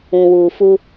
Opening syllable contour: low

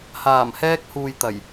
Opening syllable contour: low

